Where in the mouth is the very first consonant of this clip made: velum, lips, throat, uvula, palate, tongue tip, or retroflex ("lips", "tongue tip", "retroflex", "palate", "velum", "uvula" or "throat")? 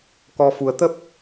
velum